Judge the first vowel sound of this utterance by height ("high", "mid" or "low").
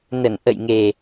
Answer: mid